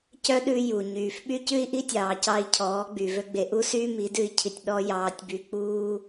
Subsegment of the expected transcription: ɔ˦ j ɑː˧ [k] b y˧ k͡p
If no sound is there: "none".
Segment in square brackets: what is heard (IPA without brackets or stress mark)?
tʲ